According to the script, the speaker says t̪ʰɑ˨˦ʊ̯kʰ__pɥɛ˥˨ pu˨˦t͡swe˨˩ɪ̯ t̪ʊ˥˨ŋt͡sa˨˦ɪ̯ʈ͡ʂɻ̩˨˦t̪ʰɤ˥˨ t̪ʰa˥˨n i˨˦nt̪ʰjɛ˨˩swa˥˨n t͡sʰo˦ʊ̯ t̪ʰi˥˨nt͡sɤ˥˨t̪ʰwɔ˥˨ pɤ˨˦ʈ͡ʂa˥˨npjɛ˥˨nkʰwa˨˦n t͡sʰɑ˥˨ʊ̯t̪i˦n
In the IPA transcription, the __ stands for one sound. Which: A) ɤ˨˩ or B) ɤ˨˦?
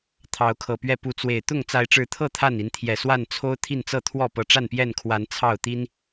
A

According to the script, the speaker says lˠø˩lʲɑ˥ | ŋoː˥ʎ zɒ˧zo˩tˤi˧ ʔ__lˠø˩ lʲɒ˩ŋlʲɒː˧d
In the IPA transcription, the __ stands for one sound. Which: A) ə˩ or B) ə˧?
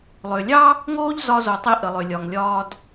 A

